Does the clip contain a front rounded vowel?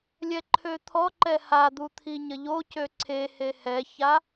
yes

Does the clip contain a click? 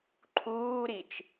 yes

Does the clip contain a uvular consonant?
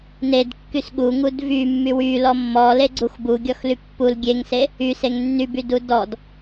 no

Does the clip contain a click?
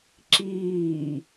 yes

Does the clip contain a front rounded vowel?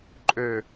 yes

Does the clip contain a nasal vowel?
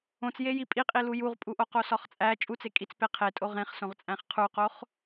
yes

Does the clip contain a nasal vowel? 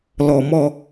no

